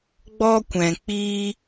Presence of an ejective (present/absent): absent